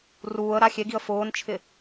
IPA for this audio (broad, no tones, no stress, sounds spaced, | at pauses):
r uː ə̯ ɾ a xʲ e ɡ i ə̯ f ʊː n t͡ʃʰ ɪ